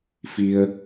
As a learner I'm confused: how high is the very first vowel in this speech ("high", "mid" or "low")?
high